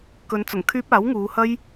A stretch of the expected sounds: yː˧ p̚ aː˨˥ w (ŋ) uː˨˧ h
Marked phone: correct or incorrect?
correct